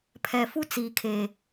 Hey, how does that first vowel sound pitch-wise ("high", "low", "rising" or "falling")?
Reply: low